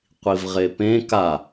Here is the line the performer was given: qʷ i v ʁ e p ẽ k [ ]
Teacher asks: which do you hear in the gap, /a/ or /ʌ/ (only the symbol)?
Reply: a